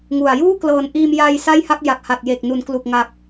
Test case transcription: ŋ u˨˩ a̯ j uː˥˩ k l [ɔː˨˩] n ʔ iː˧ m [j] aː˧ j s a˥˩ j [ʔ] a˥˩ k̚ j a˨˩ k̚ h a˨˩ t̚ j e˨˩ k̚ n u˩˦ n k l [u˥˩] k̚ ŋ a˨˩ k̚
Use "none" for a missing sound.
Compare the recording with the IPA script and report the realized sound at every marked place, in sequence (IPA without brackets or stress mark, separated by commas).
ɤː˨˩, j, h, u˨˩